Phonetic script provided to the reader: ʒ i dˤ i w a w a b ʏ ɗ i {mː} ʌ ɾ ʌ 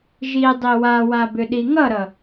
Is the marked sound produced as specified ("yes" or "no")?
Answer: no